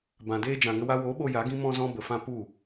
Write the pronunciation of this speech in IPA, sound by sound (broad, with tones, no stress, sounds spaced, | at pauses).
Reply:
b ã˨ d eː˧ d͡ʒ ã˨ ŋ ə˧ w a˧ w o˨˦ ɓ o˧ j a˨˦ ɡ ĩ˦ m ɔ̃˧ z ɔ̃˧ b ə˨ f ã˧ p u˦˨